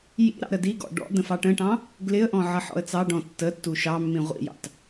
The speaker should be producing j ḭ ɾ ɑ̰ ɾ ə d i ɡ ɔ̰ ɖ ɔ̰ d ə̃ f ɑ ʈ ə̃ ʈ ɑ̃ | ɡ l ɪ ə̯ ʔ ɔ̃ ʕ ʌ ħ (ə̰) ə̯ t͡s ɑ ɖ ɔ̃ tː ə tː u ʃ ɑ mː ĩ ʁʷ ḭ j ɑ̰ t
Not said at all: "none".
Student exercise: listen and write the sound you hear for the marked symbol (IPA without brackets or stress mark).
ɔ̰